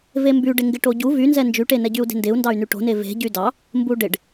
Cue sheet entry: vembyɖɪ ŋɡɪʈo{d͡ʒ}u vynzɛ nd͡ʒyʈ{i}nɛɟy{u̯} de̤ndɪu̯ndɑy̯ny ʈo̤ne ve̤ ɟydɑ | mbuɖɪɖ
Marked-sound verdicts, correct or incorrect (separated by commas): incorrect, incorrect, correct